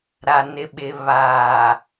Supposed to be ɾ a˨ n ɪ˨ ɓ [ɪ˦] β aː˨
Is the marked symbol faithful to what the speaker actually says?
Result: no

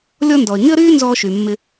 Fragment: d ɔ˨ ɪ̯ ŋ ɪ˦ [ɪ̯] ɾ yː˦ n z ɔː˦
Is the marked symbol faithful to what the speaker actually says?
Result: no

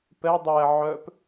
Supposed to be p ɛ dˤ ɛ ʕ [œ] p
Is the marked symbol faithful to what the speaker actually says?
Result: yes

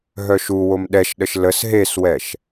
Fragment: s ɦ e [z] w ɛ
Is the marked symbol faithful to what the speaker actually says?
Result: no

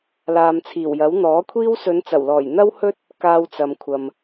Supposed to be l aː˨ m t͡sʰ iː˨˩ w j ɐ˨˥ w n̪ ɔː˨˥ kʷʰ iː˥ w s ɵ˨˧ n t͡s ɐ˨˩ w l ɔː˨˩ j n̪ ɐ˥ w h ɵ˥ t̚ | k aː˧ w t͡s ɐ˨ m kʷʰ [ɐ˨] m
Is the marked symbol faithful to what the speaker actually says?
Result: yes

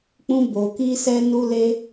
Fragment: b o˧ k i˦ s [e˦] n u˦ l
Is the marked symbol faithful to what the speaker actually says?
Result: no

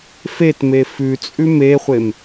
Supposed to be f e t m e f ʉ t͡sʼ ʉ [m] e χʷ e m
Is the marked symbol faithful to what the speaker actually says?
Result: yes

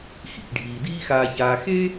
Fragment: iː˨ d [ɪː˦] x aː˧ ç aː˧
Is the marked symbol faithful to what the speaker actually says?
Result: no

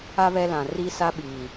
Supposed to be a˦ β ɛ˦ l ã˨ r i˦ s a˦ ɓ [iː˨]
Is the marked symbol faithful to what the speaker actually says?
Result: yes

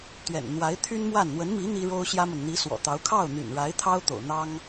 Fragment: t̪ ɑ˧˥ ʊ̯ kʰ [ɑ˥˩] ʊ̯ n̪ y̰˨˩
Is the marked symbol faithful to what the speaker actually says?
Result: yes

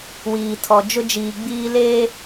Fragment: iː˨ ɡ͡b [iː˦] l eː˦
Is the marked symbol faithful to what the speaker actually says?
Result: yes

